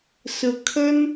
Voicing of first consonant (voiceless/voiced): voiceless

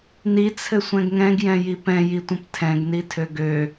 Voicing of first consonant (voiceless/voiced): voiced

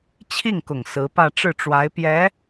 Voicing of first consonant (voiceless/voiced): voiceless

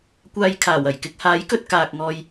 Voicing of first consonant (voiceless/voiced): voiceless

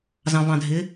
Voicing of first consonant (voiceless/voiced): voiced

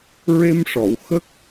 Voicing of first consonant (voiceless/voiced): voiced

